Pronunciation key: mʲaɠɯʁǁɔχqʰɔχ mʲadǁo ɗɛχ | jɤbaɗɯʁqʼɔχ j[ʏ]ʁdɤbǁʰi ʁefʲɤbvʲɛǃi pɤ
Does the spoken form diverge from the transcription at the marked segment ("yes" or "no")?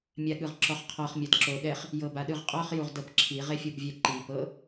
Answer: yes